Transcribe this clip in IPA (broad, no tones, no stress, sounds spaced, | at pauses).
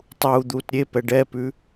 tˤ uː d̪ uː t ɾʲ e p ɛ ɖ ɛ p ʉ